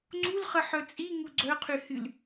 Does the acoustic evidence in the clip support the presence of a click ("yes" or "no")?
yes